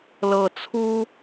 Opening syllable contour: low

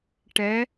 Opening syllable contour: rising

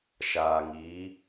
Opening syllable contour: low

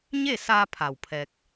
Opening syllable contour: falling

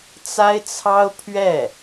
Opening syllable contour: high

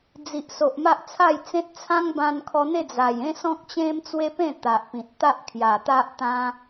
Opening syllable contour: low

